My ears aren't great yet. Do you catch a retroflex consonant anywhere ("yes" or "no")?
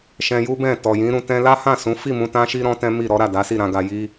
no